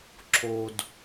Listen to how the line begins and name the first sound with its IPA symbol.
ǁʰ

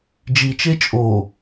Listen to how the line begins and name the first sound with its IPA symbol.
d͡ʒ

